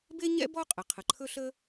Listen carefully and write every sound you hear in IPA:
b e˥ ɲ ɛ̰˥ b ɔ˥ qʼ ə˩ qʰ ə˩ ǃʰ ɵ˥ ɬ ə˥

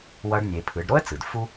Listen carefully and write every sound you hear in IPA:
w ʌ˧˥ ɖ nʲ e˩˧ pʰ ɯ˩˧ ɖ ɾ o˥ ə̯ t͡s ɯ˩ d f u˥

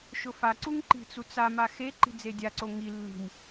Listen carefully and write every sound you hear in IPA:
ʃ ʊ f a ǀ u ŋ ǃ i̤ t͡s u t͡s a m a x e ǃ i̤ d͡z e dʲ a ǀ o ŋ i lː i̤ m

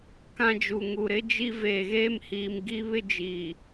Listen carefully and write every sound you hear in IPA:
k ã˦ d͡ʒ u˨ ŋ u˨ ɾ ɪ˦ d͡ʒ i˦ v eː˨ ɣ eː˦ m h iː˨ m ɡ i˦ β ɪ˦ d͡ʒ iː˨

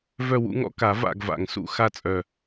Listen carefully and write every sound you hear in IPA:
v œ˦˨ w ṵ˦ ŋ ɔ̰˦ k a˨˩˦ v a̰˦˨ ɡ v a̰˨˩ ŋ s ṵ˦˨ x a˦˨ t͡sʼ œ˨˩

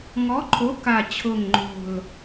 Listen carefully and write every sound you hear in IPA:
ŋ ɔ˨˥ ǃʰ o˨˥ k a˨˩ t͡ɕʰ ʊ˨˩ ŋ ŋ͡ǃ o̤˨˩ l

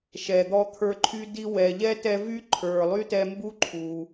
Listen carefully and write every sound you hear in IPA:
ʃ ɛ˨ d̪ ɔ˦ t̪ʰ ə˞˦ ǃʰ y˥ d i˥ w ɛ˨ ʎ ɛ˥ t ɛ˦ v y˥ ǃʰ ə˞˨ lˠ y˥ t ɛ˦ m b u˦ ǃʰ u˩

